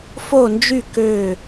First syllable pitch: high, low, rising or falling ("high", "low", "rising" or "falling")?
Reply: falling